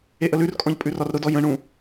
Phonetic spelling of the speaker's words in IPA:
eʔəlʉrkʼɔ̃ʎ pʼʉrɒrɾʊdɔ jə̃ɳũ

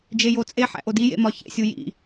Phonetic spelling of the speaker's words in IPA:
d͡ʒejot͡sʼe ħæ̰ʔodi jḛmɒçḛ sʲujḭ

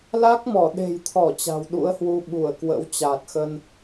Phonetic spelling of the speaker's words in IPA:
la˦˥k̚mɔ˧˩ɗe̤˨˩jt̪ʰɔ˧˩ t͡ɕa̤˨˩wɗṵ˧˥ə̯hwu˧ ɓu˧˩ə̯kwə̰˧˥w t͡ɕa˨˩t̚xə˧n

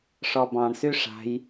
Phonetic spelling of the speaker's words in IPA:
ʂɔbɑ̃ɳsy ʂa̤j

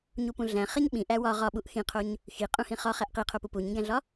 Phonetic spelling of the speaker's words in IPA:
ɲupũɮæ̃ χeɲɓĩ ʔæwɒ ʁɒɓuʔ xĩqʰoɲ | xiqʼũ hĩχɒχæʔ qiqʰopu puɲĩɡæ̃ɮɒ

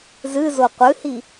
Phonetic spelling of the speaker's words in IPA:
zɨzo qʷɨhi

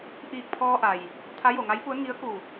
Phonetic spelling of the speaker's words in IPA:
ʔiː˧˩k̚pʰɔː˧ʔa˩j | t̪ʰa˧˥jo˩ŋa˧˥jpu˧˥ə̯ ŋi˧˥ə̯ku˧˩

